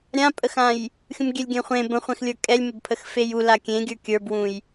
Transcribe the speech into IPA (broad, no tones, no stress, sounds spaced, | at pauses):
ɾʲ ã pʼ ə x ã j | xʲ ũ m ɡʲ ɛ lʲ ɡʲ ɛ̃ χʷ ẽ b ə̃ χʷ ɛ̃ x lʲ ə˞ kʼ ɛ lʲ m ə b pʰ ə x f e j u l a kʲ ẽ ɡʲ ə˞ kʲ ə˞ b w ũ j